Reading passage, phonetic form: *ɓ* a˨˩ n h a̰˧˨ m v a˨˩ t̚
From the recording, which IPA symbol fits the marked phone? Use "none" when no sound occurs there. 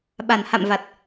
ɓ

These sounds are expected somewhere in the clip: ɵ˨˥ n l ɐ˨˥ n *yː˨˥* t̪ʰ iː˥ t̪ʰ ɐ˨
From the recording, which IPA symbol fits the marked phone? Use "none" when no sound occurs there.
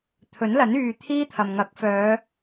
yː˨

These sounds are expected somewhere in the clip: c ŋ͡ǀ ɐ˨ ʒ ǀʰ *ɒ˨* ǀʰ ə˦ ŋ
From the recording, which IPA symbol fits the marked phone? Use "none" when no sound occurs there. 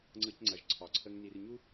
ɒ˨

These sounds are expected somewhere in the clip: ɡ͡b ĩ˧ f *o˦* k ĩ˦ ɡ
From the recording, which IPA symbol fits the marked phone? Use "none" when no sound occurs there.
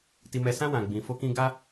o˦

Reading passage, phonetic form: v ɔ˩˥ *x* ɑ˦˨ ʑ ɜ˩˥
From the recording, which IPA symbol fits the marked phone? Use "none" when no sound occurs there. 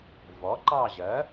ǃ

